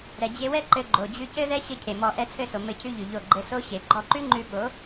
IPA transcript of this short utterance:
ɾɛ˨d͡ʑe˧wɛ˦ ǃɘ˧ɡ͡ǃo˨ d͡ʑʉ˧cɘ˦ðɛ˦ ɕɘ˦cʰe˨mɔ˧ ʔɛ˧t͡sʰɘ˦˨so˨ mɘ˦˨cʰʉ˦ʎʉ˨ʎo˦˨ ɡ͡ǃɘ˧so˦ɕe˨ ɡ͡ǃɔ˧ǃʉ˦ ŋ͡ǃʉ˧ɓo˨˦

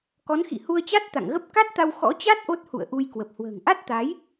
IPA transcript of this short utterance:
kɔ˨˦nxḭ˧˨ hu˧ə̯t͡ɕa˦˥t̚ t̪a̰˧˨ŋɣə˦˥p̚ ka˦˥t̚t̪a˧w xɔ̰˧˥t͡ɕa˦˥t̚ ʔo˦˥t̚hṵ˧˨ə̯ʔu˧jkwə˨˩p̚ hwə̤ː˨˩ŋʔa˦˥t̚t̪a˨˦j

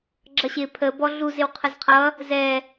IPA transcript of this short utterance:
ɡ͡ǁʌɕɪ pʰə bɔɮuzɪw qʰəzqʰʌ | zɛ

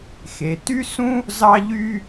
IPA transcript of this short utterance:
xe˩ty˥ sũ˥ | zɑ˥ʎy˥

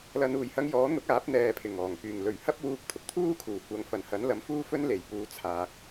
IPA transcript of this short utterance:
lɐ˨˧nuː˨˩jhɐ˧ŋ jɔː˨˥n̪ʊ˨˥k̚aː˨˥p̚ n̪ɛː˧pʰɪ˨˩ŋɔː˨˩ŋ pyː˨˩ŋlɵ˨˩ɥhɐ˥p̚wuː˧k̚ t̪ʰʊ˨k̚t̪ʰuː˥kʰuː˨˩ kʷɐ˨ŋfɐ˨˩nhɐ˨˥nlɐ˨˥m fuː˥fɵ˥nle˨˩jpuː˧ t͡sʰaː˧k̚

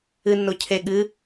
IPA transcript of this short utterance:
ɨnːo cʰe ɠɨ

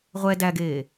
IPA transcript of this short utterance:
ʁʷɛ dæɡeː

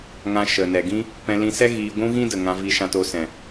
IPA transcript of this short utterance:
ŋã˧ ʃə˨nɛ˨ɡĩ˦ | pɛ̃˧lĩ˧sɛ˦ ɣiː˧ɡʷũ˦ɣĩ˦də˨ ŋã˧vi˧ʃã˧to˧ sɛ̃˨

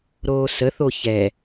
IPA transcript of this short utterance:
ɾoːsəθo çɛ

